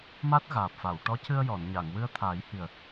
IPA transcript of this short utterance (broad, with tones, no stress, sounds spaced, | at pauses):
m a˦˥ t̚ ɣ aː˨˩ p̚ f a˨˩˨ w ʈ ɔ˧˥ c ɨ˧ ə̯ j ɔ˨˩˨ n ɲ a˨˩˨ ŋ w ɨ˧ ə̯ t̪ʰ aː˨˩˦ j h i˨˩ ə̯